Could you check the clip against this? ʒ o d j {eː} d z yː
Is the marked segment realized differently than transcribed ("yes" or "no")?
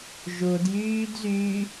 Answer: yes